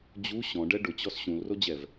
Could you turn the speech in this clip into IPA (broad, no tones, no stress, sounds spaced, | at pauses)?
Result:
d͡ʑ u ɕ ɔ̃ ɖ ɛ ɖ ʊ t͡ɕ ɔ s ɕ ũ l r o d͡ʑ ɛ v